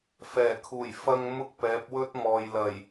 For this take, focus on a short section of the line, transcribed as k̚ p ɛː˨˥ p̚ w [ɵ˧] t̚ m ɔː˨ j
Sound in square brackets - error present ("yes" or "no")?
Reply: yes